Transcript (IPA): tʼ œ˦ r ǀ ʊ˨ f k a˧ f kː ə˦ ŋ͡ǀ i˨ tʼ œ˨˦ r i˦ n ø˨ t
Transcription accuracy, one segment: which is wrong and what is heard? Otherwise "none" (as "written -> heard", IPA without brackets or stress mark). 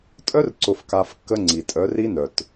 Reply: ø˨ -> œ˨